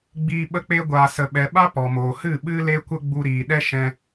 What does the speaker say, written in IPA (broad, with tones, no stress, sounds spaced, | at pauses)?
ɡ͡b iː˦ ɓ ə˦ k͡p e˦ ɡʷ aː˧ s ə˧ ɓ ɛ˧ ɓ a˦ p ɔ˨ m oː˨ h ɨ˦˨ ɓ ɨ˦ l e˦ kʷ ə˦ ɡ͡b u˧ ɾ iː˨ ɗ ɛ˦ ʃ ɛ̃˦